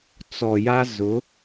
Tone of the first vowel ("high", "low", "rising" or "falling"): low